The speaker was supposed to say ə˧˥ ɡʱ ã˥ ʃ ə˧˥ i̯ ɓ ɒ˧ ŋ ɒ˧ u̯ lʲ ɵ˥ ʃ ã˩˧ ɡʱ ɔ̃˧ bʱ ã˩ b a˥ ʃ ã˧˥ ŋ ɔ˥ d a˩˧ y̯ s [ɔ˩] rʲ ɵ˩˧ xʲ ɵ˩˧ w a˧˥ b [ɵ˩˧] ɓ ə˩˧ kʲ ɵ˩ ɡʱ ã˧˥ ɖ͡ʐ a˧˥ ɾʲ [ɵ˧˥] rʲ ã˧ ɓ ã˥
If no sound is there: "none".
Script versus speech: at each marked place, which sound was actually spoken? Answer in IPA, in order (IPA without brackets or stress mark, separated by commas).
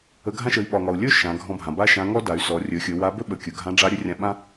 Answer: ɔ˩˧, ɵ˥, ɵ˧˥